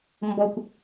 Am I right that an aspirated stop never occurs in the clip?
yes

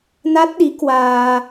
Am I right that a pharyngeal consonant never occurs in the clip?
yes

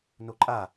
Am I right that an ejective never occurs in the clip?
no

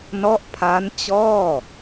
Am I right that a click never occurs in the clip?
yes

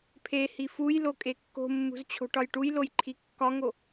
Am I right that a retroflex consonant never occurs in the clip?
no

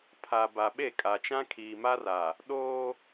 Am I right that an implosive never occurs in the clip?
no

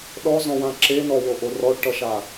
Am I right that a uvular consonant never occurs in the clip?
yes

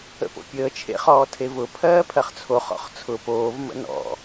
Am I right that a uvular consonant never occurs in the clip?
no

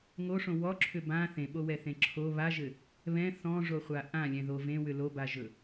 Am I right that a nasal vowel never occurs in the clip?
no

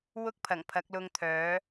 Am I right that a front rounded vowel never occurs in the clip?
no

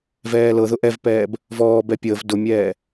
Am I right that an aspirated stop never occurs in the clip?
yes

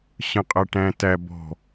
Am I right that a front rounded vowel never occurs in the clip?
yes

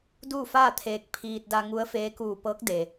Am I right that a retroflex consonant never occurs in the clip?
yes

